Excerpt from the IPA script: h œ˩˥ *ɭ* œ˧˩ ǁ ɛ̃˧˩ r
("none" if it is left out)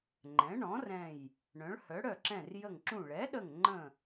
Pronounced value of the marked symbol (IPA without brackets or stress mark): ɽ